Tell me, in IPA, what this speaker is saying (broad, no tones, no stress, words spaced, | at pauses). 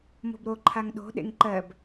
mo̤bɾo ǃʰaŋɗo̤ ɗḛŋǃɜb